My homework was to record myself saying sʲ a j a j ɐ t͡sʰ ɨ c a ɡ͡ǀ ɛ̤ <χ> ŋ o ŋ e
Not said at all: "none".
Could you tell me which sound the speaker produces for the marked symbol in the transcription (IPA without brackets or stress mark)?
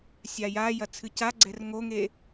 r